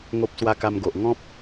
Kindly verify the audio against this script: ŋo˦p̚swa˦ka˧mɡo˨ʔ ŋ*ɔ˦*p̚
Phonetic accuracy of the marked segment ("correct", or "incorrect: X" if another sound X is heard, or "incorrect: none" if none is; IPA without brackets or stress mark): incorrect: ɔ̃˦